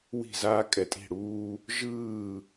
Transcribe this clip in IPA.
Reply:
w i̤˦˨ z aː˦ kʼ ɛ˨ tʼ i̤˦˨ ɽ uː˦ | ʒ ɯː˦˨

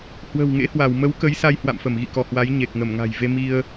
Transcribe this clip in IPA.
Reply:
h w ə̤˨˩ w ŋ ḛ˧˥ h w a˧˩ w m ə˨˦ w k ə˨˦ j s a˧ j h w a̰˧˨ m f ə˧˩ m ɣ ḭ˧˨ k ɔ˧˩ h w a˨˦ j ɲ e˨˩ k̚ ŋ ə˧˩ m ŋ a̤˨˩ j v e˧ m i˧ ə̯

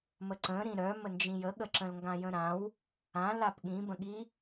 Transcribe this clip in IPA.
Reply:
m ə ǀ ə̃ ɾ ĩ ɾ œ m ə n d͡ʒ ĩ j ə ɠ ə ǁ ə̃ l ŋ ɡ ã j ə̃ ɾ ã w | ã l a p ɠ ĩ b ə̃ ɠ i

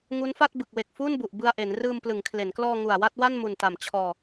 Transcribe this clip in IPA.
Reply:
ŋ u˦˥ n f a˥˩ t̚ b ɯ˨˩ k̚ w e˨˩ k̚ f uː˥˩ n b u˨˩ ʔ b ɯ˧ a̯ ʔ e˩˦ n r ɯː˧ m p l ɯ˩˦ ŋ kʰ l e˩˦ n k l ɔː˧ ŋ u˨˩ a̯ w a˥˩ t̚ w a˥˩ n m u˨˩ n t a˨˩ m t͡ɕʰ ɔː˧

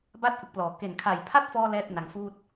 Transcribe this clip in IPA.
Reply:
b a˥˩ t̚ ʔ ɯ˦˥ k̚ p l ɔː˨˩ k e˨˩ n kʰ a˨˩ j pʰ a˥˩ t̚ f ɔː˧ l ɛː˥˩ t̚ n a˩˦ ŋ f uː˥˩ t̚

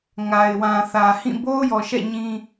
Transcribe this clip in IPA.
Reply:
ŋ a˨ ɪ̯ w ã˨ θ ä˨ h ĩ˦˨ b o˦ ʊ̯ j ɔ˨ ʃ ɛ̰˦˨ ɲ ĩ˦

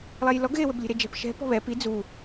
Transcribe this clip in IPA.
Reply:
lˠ ɛ j l ɔ ɡ ɣ e w ɘ b lʲ e̤ ɾ e d͡ʒ ɛ̤ p ʃ ɛ̤ p ɔ̤ β ɛ p i d͡z u

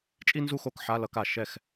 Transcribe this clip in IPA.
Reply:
t͡ʃʼ i˥ n z u˥˧ x o˧ k ħ a˧˥˧ l ʌ˧ k a˨˩ ʃ ɛ˥˩ x

